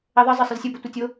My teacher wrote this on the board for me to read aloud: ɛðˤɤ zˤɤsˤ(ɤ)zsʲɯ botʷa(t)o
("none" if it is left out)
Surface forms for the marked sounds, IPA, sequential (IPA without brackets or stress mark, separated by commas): ɯ, tʲ